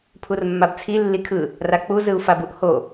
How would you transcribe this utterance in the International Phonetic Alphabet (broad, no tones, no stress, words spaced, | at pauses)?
pʰurmːabt͡sʰi lːikʰɯ | rak͡pu zɯu̯fabuʔho